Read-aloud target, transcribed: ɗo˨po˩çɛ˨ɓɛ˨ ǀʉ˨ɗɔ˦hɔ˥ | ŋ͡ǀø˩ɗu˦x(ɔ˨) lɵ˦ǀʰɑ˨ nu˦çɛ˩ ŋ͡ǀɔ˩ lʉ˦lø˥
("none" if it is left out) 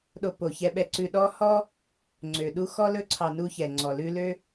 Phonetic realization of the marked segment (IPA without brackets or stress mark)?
ɔ˥